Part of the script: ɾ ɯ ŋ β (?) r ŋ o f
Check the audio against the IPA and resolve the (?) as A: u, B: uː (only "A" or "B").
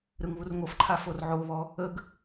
A